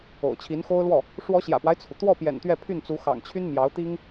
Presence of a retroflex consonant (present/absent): present